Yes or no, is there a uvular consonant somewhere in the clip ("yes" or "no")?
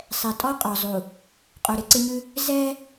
yes